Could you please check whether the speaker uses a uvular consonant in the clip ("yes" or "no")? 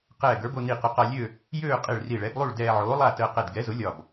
yes